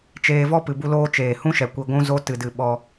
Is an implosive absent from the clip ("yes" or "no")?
no